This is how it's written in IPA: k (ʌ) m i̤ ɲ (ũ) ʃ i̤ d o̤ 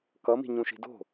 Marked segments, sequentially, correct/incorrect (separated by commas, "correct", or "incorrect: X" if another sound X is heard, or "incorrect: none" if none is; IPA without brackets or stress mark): correct, correct